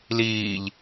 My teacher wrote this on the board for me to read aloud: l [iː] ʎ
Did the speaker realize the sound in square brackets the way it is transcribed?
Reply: yes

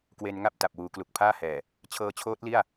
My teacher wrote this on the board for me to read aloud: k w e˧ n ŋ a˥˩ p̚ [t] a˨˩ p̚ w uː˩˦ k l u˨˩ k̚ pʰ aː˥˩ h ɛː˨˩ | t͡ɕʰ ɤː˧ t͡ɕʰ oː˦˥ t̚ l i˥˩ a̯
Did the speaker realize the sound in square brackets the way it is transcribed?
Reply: yes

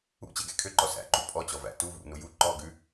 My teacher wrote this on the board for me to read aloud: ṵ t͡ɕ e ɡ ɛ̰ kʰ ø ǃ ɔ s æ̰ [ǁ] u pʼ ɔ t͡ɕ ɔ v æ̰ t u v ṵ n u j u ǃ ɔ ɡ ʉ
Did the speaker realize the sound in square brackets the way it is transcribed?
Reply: no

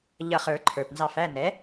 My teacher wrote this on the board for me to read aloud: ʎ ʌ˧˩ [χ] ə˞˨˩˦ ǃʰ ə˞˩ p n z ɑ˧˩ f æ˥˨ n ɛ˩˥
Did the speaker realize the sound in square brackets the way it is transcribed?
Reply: yes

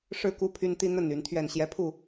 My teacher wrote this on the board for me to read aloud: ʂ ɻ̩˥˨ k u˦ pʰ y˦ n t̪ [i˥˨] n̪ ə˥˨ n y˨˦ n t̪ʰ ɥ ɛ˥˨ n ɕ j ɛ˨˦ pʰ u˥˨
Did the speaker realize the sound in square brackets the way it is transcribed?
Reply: no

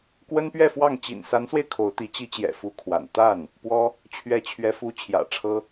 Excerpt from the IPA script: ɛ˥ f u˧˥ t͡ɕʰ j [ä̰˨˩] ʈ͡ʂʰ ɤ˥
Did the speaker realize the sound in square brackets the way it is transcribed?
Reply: yes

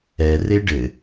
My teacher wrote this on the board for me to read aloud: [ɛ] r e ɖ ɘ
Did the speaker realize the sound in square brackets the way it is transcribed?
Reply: yes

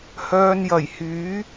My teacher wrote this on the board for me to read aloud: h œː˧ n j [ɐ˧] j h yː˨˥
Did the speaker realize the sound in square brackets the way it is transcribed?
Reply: no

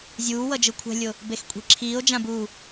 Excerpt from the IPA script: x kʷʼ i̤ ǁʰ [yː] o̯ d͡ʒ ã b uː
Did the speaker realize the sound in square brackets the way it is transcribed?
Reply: no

